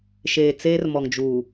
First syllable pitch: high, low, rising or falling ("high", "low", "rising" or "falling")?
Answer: low